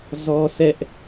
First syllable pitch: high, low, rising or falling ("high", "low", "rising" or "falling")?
high